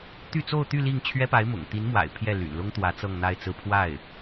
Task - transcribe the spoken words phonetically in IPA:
t̪ y˥˧ t͡s o˥˧ ʊ̯ t̪ y˥˧ l i˥˩ ŋ t͡ɕʰ ɥ ɛ˥ p a˧˥ ɪ̯ m ʊ̰˨˩ ŋ t̪ i˧˥ n m w a̰˨˩ ɪ̯ pʰ j ɛ˥˩ l y̰˨˩ n l ʊ˥ ŋ t̪ w ä˧˥ t͡s ɤ˥˧ ŋ n̪ a˥˧ ɪ̯ t͡s ɹ̩˥˧ pʰ w a˥˩ ɪ̯

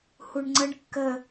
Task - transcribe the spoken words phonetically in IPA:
h u ɳ ŋ͡ǀ ə ɳ kː ə

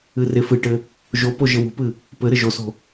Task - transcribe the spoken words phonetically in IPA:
ɨ r e f ɨ ʈ ɘ | ʒ o p o ʒ ɘ w ṳ p ɨ | p ɘ ɾ ɘ ʒ o s o̤

